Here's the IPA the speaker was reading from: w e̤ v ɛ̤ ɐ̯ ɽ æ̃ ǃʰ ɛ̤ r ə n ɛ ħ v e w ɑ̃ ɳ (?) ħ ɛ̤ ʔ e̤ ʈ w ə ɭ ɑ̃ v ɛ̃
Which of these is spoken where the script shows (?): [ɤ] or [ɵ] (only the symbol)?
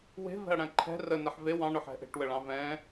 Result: ɵ